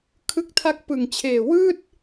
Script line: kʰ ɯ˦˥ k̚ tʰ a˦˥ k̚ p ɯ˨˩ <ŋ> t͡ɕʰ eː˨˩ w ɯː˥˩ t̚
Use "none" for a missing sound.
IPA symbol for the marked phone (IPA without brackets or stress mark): ŋ